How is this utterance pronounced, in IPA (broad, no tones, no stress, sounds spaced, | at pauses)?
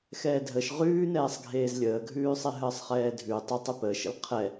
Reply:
x ɛː dʱ ə ʃ ʁ ʉː n ɛː sˤ ɡʱ eː z lʲ əː ɡʱ ʉː sˤ e ɦ əː sˤ χ ɛː dʱ ʉ tˤ ə tˤ ʉ p əː ʃ ə̰ l qʰ ɛ